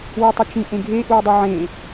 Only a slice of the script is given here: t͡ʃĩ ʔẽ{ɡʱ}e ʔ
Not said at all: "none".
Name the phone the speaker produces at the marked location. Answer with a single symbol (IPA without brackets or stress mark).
ɡʱ